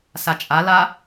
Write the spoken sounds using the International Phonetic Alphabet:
s a t͡ʃʼ a l a

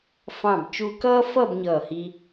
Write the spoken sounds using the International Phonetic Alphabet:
f ɑ̃˧˩ b t͡ʃ u˧ k ʌː˥ f ʌ˥˧ b ɲ ʌː˧˩ h i˧

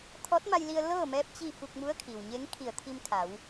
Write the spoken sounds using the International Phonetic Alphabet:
t̪ʰ ɔː˧˥ t̚ m a˧ j l i˧ ə̯ l ɤː˥˨ m ɛː˧˥ p̚ t͡ɕ i˥˨ f u˧ k̚ m u˧˥ ə̯ kʰ i˩ w ɲ e˧˥ ŋ kʰ i˧˩ ə̯ t̪ʰ i˧ m kʰ a˩˧ w

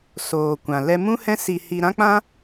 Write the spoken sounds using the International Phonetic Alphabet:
s oː˨ kʷ ã˨ l ɛ˧ m ũ˦ h ɛ̃˦ s i˧ h i˧ ɾ ã˦ k͡p ã˦

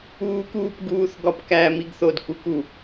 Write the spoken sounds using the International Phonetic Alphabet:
uː˥ k uː˥ p ɡ uː˧˥˧ θ ɡ ɒ˥˨ p k æː˥ m i˥ ɡ θ o˥˨ d k u˥ k u˥˨

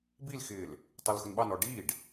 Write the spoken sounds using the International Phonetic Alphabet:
b i l x ɪː l | tˤ ə˞ l x ʊ n ɓ ɑ n ɔ ɖ i ɖ

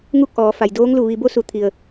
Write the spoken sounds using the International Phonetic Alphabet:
ŋ u˥˨ k̚ ʔ ɔː˩˧ f a˩ j d oː˧˥ ŋ l u˧˩ ʋ i˧ b o˧˥ s u˩˧ t̪ʰ i˩ ə̯

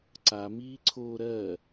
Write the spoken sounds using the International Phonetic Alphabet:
ǀ a m iː ǀʰ oː ɾ ɜ

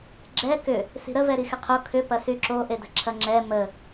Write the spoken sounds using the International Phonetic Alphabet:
ɡ͡ǁ ɛ k ʏ | s i̤ ɾ ə v ɛ ɾ i x ɪ qʰ o kʰ ʏ p ɐ s y ǁ o ʔ e d ə̤ ǁʰ ɐ ŋ͡ǁ ɛ m ə

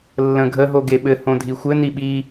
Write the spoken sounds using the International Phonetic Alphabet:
lː ə̃ ɡʱ ə ɦ o ɡ e ɓ ɘ h õ dʱ i xʷ ɘ n i ɓ i

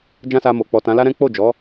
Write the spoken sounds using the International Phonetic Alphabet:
d͡ʒ ã˦ s a˧ m o˨ k͡p ɔ˨ t ã˨˦ l a˦ ɾ ɛ̃˦ k͡p o˦˨ d͡ʒ ɔ˨˦

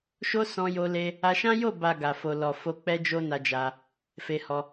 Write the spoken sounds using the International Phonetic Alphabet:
ʃ o˧ s ɔ̃˧ j o˧ l e˧ | a˧ ʃ ã˦ j o˦˨ b a˨ ɡ a˨ f o˨ l ɔ˨ f o˧ k͡p ɛ˦ d͡ʒ o˦ n a˧ d͡ʒ a˧ | f e˧ h ɔ˧

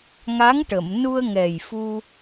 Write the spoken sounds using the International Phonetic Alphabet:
ŋ a˧˥ ŋ ʈ ə˨˩˨ m n u˧ ə̯ ŋ ɛ˨˩ j f u˧

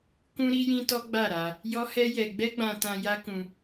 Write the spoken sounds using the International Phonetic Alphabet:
k ũ˧ ɾ i˧ j ĩ˧ t ɔ˦ ɡ͡b a˦˨ ɾ a˧ | j ɔ˦ h ɛ˦ j ɛ˧ ɡ͡b ɛ˦ ɡ͡b ã˧ t ã˧ j a˦ k ũ˧

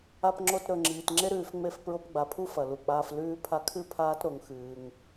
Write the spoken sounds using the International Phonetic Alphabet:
a˧ p ŋ͡ǁ o˧ t ɾ ɵ˨ ŋ͡ǁ iː˨ t ŋ͡ǁ e˦ ɾ ʉː˧ f ŋ͡m e˦˨ f p ɹ o˧ p ɡ͡b a˨ pʰ u˦ f ɐ˨ l u˨ k͡p aː˧ f l ʉː˧ pʰ a˧ kʰ ɨ˦˨ pʰ aː˦ t ɾ o˧ ŋ x ɨː˦ ŋ

